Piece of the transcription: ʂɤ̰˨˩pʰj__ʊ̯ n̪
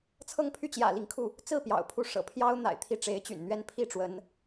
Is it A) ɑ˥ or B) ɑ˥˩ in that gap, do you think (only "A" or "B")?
A